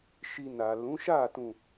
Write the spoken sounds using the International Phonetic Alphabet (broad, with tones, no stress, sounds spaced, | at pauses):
ʃ i˧ n a˨ l ũ˨˦ ʃ a˦˨ t ũ˨